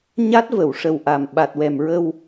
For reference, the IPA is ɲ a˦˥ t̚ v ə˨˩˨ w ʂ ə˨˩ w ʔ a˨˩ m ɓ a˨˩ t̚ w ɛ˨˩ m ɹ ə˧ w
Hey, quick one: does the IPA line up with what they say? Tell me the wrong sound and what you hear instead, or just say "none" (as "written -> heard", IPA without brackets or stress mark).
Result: none